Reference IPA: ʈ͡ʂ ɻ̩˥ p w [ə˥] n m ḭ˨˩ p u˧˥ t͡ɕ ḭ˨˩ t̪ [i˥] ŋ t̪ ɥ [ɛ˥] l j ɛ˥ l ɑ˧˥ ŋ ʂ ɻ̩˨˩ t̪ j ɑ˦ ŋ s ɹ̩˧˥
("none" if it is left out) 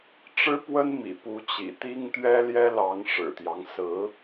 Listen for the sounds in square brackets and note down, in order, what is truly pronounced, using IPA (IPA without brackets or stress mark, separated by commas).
ə˥, i˥, ɛ˥